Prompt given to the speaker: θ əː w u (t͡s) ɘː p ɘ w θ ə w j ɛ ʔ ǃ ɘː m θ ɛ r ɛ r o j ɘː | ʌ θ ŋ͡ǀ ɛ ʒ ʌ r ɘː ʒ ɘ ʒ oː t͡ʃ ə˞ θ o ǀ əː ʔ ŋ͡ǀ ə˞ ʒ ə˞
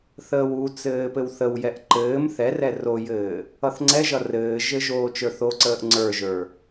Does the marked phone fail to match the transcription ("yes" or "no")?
no